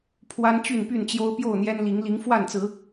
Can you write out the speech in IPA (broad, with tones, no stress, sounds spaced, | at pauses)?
pʰ w a˦ n t͡ɕ y˥˨ n p y˥˨ n t͡ɕ j o˦ ʊ̯ p j o˥˨ ʊ̯ n̪ j ɛ˦ n l i˨˦ ŋ l i˨˦ ŋ f w a˥˨ n t͡s ɹ̩˨˦